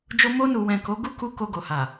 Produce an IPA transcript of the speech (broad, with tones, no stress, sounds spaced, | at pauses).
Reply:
d͡ʒ o˧ m o˧ n u˨ w ɛ̃˨ k o˨˦ ɡ u˦ k u˧ k o˧ ɡ o˨ h a˨